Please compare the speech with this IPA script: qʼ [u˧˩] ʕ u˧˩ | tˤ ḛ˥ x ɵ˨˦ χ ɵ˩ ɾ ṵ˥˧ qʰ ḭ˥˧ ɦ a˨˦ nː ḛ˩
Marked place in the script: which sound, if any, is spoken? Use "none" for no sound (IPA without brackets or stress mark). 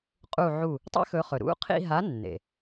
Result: u˧˩